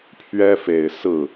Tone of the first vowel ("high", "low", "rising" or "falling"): high